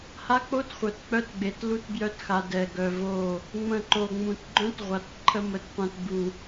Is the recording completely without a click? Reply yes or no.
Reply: no